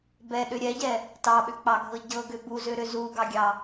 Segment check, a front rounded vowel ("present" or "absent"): present